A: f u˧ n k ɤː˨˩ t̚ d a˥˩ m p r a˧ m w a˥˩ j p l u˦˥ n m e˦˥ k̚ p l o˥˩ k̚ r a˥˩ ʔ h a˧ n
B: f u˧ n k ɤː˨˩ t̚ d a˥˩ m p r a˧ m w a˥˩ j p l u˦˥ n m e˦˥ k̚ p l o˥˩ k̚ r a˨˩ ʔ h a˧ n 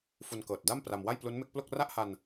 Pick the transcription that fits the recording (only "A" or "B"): A